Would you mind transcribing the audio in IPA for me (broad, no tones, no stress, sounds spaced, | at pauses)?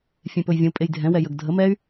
fʲ ẽ p ɵ j vʲ ə̃ u̯ pʼ e j dʱ ɛ̃ w ɛ j ə ɡ dʱ ə m ɛ y̯